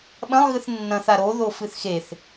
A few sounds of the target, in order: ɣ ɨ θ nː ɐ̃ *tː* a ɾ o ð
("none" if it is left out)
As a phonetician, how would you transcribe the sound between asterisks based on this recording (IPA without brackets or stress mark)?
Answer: θ